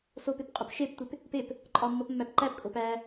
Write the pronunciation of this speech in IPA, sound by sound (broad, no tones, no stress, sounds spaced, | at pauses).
s o p e p qʼ o p ʃ e p tʷ e p | p e p | ǃʼ ɒ mː ɒ p mː æ p ǃ æ p kʼ o p æ